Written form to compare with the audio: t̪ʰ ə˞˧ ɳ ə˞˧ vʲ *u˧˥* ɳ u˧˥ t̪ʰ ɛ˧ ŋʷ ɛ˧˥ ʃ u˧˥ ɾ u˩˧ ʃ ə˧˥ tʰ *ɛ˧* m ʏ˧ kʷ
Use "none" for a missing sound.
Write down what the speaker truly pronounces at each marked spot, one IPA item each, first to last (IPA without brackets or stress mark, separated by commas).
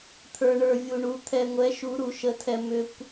u˧, ɛ˧